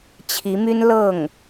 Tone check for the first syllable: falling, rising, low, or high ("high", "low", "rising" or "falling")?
rising